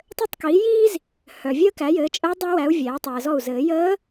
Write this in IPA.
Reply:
tˤ ɘ˥˩ tˤ k iː˩˥ j iː˥ z | h œ˨ vʲ əː˥ k æ˩˥ j ɘː˩˥ t͡ʃʼ əː˧˥ dˤ æ˧˥ w æ˩˥ u̯ vʲ æː˩˥ tˤ ɘː˨ z ɔ˥˩ u̯ z ɘː˨˩˦ j əː˧˥

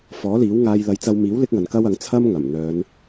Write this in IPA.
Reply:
f ɔː˨˥ l iː˨˥ w ŋ aː˧ j l ɐ˨˧ j t͡s ɐ˧ w m iː˨˥ w l ɪ˥ k̚ ŋ ɐ˨˧ n k ɐ˥ w ɐ˨˥ ŋ t͡sʰ ɐ˥ m ŋ ɐ˨˩ m n̪ œː˨˧ n

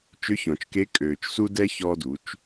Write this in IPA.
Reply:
t͡ʃ ʏ˧˥ ç ɔ̃˩ t͡ʃ k e˧˥ kʼ øː˩ t͡ʃ s u˧ d ɛ˧ ç ɔ˧ d u˩˧ t͡ʃ

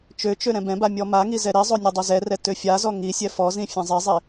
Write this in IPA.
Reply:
t͡ʃ ø t͡ʃ ø ɾ ɛ̃ b ɛ̃ b a mʲ ɔ m a ŋ i z ɛ ɾ i zˤ o nʲ ɔ dˤ ø z ɛ r ɛ t ø fʲ a z ɔ ŋ i sʲ ɛ f ɔ z ĩ fʲ ɛ̃ zˤ i zˤ i

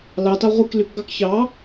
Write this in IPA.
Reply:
l ɑ t ɑ ʁʷ i k l y k ɡ ɑ k ç ɑ

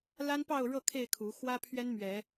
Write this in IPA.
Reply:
l a˦ n p ɑ˥˨ ʊ̯ ɻ ɤ˥˨ kʰ e˥˨ ɪ̯ kʰ u˨˦ x w ä˦ pʰ ɥ ɛ˦ n m ɥ ɛ˨˦

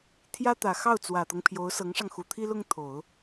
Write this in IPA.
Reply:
t̪ʰ j ä˥ t̪ ä˨˩ x ɑ˥˩ ʊ̯ t͡s w ä˨˩ t̪ ɤ˦ ŋ pʰ j o˧˥ ʊ̯ s ɤ˧˥ ŋ ʂ ɑ˧ ŋ x u˨˩ t̪ʰ i˥ l ʊ˥ ŋ t̪ʰ o˨˩˦ ʊ̯

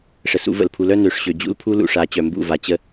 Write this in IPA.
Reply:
ʂ ə˨ s ṵ˨˦ v ə̰˨ l pʰ u˨˦ l œ˦ n ø˨ ʂ ɕ ø˨ d͡ʑ ṵ˦ l pʰ u˦ l ṵ˨ ʂ a˨˦ t͡ɕ œ˨ m b ṵ˦˨ v a˨ t͡ɕ ə˦

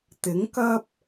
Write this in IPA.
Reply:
t̪ ɪ˨˥ ŋ k ɐ˥ p̚

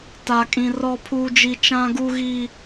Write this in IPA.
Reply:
t a˦ kʼ ĩ˦ r ɔ˦ pʰ uː˦ d͡ʒ i˦ t͡ʃ ã˦ ɡ u˦ ɣ i˦

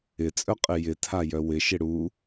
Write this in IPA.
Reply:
ɪ t͡sʼ œ qʼ ɪ j ɪ tʰ a j œ w ɪ ʃ ɪ ɽ u

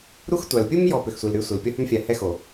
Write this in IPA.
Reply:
ɾ u˦ x tʷ a˨ l pʲ u˦ m j ɔ˨ p ʏ˨ x sʷ i˨ l ɾ y˦ sʷ ɪ˨ l pʲ ɔ˦ h ø˦ m fʲ a˨ h ɛ˦ x o˨

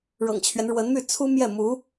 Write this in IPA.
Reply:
ɻ ɤ̰˨˩ ŋ t͡ɕʰ ɥ ɛ˦ n ɻ w ə˧˥ n m y˥˩ t͡sʰ u˥ m j ɛ˥˩ m u˧˥

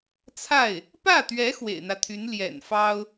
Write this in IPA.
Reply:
t͡sʰ a˥˩ ɪ̯ | p ä˥˩ t̪ ɥ ɛ˧˥ x w ḛ˨˩ ɪ̯ n̪ ä˦ t̪ʰ y˧˥ n l j ɛ̰˨˩ n f ɑ˥ ʊ̯

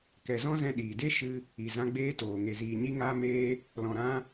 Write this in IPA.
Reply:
k ɛ˨ z ɔ̃˦ z ɛ̃˧ ɗ iː˨ d e˦ ʃ ɨ˧ | i˨ z ã˧ ɡ͡b eː˧ t oː˨ ŋ e˨ z iː˨ ɲ i˧ ŋ aː˧ m eː˧ | l ɔ̃˨ ɾ ã˧

